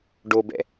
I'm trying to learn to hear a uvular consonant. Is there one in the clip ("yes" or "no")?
no